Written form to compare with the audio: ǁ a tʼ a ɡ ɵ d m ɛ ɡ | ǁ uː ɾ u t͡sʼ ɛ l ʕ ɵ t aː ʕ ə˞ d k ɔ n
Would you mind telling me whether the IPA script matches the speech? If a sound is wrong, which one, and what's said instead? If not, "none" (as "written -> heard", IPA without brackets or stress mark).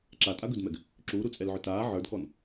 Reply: none